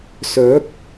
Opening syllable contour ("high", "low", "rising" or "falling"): rising